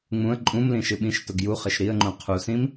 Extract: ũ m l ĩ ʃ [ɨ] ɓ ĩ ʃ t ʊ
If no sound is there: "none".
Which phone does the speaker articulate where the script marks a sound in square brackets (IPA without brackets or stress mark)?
ɨ